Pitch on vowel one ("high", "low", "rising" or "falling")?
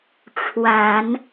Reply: low